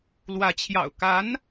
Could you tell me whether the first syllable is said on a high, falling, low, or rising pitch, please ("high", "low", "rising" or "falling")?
rising